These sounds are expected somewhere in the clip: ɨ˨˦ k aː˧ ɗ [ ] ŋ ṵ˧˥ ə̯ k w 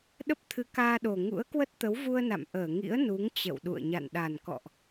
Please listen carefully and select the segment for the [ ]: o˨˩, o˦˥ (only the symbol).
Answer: o˨˩